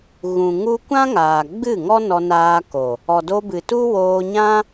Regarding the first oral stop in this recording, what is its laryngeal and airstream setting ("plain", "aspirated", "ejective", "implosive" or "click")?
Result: plain